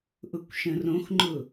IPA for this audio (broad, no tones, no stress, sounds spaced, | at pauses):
ʔ ʊ kʷ ʃ ə̃ r õ x ŋ͡ǃ ʊ